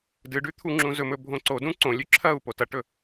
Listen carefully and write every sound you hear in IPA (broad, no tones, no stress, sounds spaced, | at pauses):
d ɨ ɖ ʉ t̪ʰ u ŋ͡ǁ ũ z ɵ m ɵ bʱ õ ǀ o d ũ ǀ õ lʲ ʉ ǁʰ ɐ u̯ p o t ɐ ʈ ɵ